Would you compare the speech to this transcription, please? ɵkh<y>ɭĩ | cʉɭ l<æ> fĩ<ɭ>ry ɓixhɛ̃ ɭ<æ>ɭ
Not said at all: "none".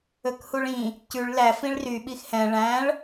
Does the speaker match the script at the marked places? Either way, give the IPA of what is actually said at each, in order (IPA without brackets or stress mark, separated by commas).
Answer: u, æ, ɭ, æ̃